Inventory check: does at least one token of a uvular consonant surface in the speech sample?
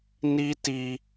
no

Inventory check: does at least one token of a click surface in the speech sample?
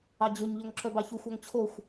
yes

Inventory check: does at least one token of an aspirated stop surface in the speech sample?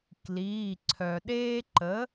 yes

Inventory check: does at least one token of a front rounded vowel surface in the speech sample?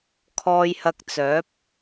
yes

